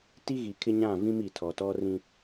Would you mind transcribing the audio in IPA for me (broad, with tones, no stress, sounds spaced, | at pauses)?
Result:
t i˦ ɣ i˨ kʰ ɪ˦ ɲ ã˦˨ v ĩ˦ m i˨ tʰ ɔ˨ t ɔ˦ r ĩ˦